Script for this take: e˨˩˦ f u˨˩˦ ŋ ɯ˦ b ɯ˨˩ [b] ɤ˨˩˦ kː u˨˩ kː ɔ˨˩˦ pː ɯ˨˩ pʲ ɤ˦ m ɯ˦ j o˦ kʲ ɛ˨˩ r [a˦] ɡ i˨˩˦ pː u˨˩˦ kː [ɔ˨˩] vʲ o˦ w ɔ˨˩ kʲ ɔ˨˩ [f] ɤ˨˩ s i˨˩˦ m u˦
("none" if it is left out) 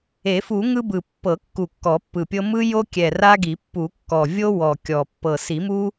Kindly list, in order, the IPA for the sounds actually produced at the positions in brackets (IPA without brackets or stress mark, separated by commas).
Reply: pː, a˦, ɔ˨˩, pː